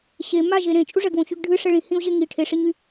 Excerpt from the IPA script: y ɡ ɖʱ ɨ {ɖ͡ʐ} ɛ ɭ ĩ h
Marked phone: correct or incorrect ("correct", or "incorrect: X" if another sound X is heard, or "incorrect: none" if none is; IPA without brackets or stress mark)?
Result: incorrect: ʂ